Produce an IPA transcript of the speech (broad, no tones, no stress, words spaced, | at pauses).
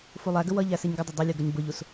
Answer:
fulˠæɡə wʌʎæ siɲɡɪdˤə dˤulʲu ɡʌɲbʊʎus